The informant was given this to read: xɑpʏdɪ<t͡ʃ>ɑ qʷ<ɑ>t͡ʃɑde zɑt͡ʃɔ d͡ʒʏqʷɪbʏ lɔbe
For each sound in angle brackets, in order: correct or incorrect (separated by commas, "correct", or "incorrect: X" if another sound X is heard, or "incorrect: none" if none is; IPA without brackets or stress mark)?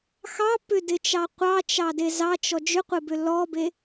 correct, correct